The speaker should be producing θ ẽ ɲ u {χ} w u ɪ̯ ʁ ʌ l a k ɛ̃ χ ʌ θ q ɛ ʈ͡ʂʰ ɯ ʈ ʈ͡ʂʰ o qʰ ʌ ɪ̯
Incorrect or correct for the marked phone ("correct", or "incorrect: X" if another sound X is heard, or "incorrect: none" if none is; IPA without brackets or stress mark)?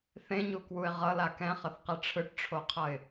incorrect: k